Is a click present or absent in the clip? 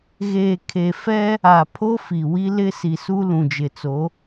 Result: absent